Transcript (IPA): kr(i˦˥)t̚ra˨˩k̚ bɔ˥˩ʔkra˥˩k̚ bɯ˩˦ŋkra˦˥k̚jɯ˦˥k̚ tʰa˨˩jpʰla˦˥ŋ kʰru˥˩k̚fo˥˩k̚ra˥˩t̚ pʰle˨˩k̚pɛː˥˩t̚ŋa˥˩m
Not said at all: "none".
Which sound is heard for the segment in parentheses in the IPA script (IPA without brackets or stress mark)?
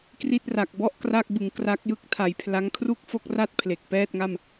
i˥˩